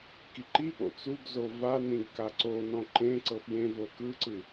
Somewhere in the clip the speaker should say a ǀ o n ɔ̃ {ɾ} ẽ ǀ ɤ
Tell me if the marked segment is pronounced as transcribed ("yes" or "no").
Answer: no